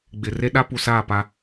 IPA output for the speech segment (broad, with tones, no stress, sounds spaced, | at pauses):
ɡ͡b ɪ˨ r e˦ ɗ a˦ p u˨ s aː˦˨ p a˦